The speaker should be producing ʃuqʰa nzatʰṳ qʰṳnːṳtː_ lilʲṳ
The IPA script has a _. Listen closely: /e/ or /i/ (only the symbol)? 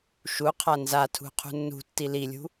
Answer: i